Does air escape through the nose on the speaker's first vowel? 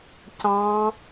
yes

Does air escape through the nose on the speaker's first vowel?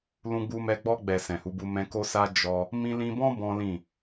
yes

